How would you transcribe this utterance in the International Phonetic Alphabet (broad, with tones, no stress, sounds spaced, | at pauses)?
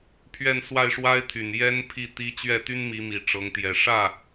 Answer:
pʰ ɥ ɛ˥˧ n s w a˥˩ ɪ̯ ʂ w a˥ ɪ̯ t̪ʰ y˨˩ n j ɛ˥ n pʰ i˥˩ t̪ i˥ t͡ɕ ɥ ɛ˥˩ t̪ y˥ n m i˧˥ m i˨˩ ʈ͡ʂ ɤ˧˥ ŋ t̪ j ɛ˨˩ ʂ ä˥˩